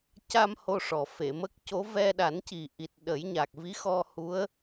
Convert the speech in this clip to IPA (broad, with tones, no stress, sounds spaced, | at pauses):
c a˧ m h o˧ ʂ ɔ˨˩ f e˨˩˨ m ə˦˥ k̚ c o˧˥ v ɛ˧ ɗ a˨˩˦ n c i˨˩ ʔ i˨˩ t̚ ɗ ə˨˩˦ j ɲ a˨˩ k̚ v i˧˥ x ɔ˧ h u˧˥ ə̯